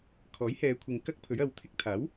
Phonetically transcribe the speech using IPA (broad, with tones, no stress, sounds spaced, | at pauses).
kʰ ɔː˨˥ j h ɛː˨˧ kʷʰ ɪ˧ ŋ k ɐ˥ k̚ pʰ ɵ˨˥ ɥ ɐ˨ w t̪ʰ ɪ˧ k̚ t̪ʰ aː˨˥ w